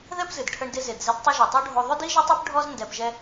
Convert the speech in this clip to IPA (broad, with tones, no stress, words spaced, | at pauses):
ðɛ˥pzɨ˩d ʈʰə˧ɳdɪ˧zɪ˩d zɪ˧dtˤɨ˧ ʒi˩tˤo˥ ɖʱo˧ ðˤʏ˥di˥ʒɛ˥tˤe˥p ɖʱɔ˥z ndɛ˧pʒɛ˥